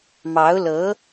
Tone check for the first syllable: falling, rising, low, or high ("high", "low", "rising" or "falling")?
rising